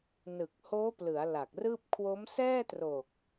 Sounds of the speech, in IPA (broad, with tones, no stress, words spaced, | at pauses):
nɯ˨˩k̚hoː˦˥plɯ˩˦a̯ la˨˩k̚rɯː˥˩p̚ kʰwo˦˥m sɛː˥˩tro˨˩k̚